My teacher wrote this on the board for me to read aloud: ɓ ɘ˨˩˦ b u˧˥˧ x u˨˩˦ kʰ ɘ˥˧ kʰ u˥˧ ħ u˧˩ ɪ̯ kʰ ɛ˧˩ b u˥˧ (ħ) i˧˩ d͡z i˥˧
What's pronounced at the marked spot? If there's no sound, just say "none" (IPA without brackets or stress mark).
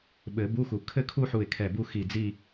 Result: x